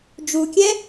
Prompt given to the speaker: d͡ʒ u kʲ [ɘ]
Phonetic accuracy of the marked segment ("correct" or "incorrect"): incorrect